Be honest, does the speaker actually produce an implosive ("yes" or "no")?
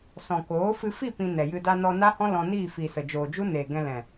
no